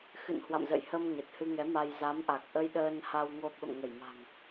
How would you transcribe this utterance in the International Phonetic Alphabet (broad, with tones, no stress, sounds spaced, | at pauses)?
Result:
x ɨ̰˧˨ n h w a̰˧˨ m z ə̰˧˨ j h ə˧ m ɲ ə˨˩ t̚ h ɨ˧ ŋ ɛ˨˦ m a˧ j z a˨˦ m ʔ a˨˩ k̚ ʔ ə˧ j ɗ əː˧ n h a˧ w ŋ o˧ ɓ ə̰˧˨ m ŋ ə˧˩ j m a̤˨˩ ŋ